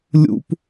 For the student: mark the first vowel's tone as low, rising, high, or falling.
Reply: high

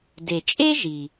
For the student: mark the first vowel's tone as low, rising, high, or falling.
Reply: low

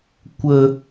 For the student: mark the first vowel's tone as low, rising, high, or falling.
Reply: low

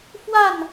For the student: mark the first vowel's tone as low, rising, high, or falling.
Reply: falling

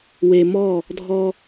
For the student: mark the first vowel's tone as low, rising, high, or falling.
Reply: low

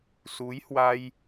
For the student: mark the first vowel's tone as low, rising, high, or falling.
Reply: rising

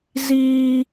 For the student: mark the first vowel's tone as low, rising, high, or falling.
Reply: high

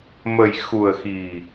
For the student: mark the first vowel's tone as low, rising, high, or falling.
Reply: low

